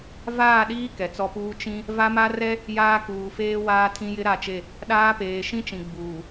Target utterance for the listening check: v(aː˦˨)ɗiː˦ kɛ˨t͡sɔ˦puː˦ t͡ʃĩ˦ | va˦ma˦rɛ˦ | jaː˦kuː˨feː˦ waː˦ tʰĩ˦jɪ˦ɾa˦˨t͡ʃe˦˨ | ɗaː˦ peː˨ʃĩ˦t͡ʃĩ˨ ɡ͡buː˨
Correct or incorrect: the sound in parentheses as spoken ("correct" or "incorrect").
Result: correct